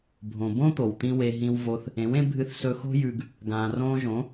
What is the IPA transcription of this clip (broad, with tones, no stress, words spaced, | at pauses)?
bʱõ˨bõ˦t̪o˨wt̪ĩ˧ we˧ ɦĩ˧wvo˧θ | ẽ˨˦wẽ˦ bʱɨ˧θ sɵ˧xo̤˦jʉ˧ɡ | ɡãː˨rõː˧ʒõ˨˦